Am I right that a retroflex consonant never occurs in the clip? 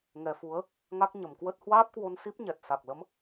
yes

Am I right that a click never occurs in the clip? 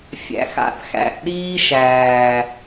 yes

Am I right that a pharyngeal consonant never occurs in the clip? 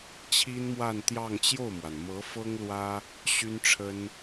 yes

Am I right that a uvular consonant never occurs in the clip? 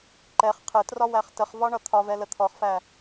no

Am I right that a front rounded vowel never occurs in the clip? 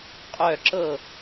no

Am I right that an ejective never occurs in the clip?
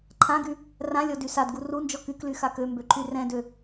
yes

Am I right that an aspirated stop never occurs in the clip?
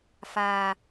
yes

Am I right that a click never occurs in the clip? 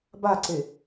no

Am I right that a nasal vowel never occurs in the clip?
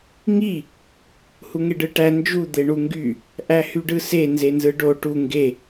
yes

